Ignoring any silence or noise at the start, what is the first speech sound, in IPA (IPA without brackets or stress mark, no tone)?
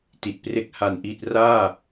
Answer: t